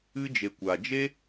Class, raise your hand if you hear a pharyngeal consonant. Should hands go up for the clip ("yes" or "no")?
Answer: no